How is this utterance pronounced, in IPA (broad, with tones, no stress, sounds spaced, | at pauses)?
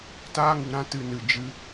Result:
t aː˧ ŋ u˨ ɾ ã˧ t ɨ˨ n ɨ˨ d͡ʒ ɨ˧